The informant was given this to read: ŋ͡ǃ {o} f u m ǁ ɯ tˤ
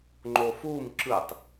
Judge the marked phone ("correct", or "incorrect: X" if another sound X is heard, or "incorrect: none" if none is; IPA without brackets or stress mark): correct